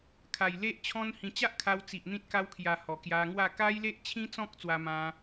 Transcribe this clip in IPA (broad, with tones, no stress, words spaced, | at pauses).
kʰa˨˩jle˦ʔt͡ɕʰɔ̃˦nhĩ˧ t͡ɕa˦ʔkʰa˧wt͡si˨ʔ n̪ĩ˦t̚ka˦wkʰja˧ hɔ˨˩kja˧ŋwa˥˧ ka˦jle˦ʔt͡ɕʰĩ˦t͡sɔ̃˦k̚ t͡swa˦mã˦